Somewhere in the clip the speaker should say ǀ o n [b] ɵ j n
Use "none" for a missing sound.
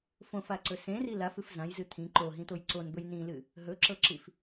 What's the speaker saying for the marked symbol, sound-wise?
b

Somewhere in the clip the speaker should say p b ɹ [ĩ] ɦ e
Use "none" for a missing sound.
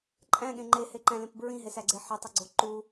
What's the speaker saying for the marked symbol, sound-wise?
ĩ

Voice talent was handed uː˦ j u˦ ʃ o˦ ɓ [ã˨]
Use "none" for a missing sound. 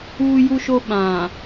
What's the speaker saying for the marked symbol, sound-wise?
ã˨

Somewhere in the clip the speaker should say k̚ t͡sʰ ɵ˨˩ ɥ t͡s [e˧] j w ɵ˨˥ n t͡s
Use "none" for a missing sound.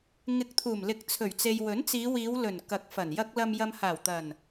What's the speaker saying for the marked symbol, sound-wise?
e˨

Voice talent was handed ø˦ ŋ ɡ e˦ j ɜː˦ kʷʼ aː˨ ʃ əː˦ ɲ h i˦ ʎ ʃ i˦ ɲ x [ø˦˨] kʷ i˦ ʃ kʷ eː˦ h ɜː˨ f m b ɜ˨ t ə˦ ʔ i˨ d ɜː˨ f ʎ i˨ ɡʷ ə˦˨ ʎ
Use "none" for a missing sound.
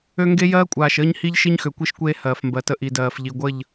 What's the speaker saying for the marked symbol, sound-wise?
ø˨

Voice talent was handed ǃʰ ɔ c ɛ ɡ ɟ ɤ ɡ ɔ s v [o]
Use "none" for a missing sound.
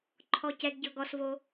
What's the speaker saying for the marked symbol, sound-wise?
o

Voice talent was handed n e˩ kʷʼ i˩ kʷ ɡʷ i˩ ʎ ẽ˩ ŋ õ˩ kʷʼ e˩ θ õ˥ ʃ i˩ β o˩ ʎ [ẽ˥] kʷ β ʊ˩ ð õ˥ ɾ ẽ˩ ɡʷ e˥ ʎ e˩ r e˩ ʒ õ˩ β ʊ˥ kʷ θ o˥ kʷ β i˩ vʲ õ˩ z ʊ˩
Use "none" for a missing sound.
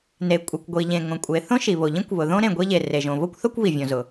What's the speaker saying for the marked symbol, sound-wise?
ĩ˥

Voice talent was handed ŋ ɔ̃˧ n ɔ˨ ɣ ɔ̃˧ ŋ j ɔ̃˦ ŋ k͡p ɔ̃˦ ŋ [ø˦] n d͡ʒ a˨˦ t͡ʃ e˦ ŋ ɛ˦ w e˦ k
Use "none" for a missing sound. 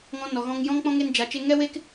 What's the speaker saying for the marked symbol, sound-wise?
e˦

